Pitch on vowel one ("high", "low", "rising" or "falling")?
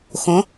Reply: rising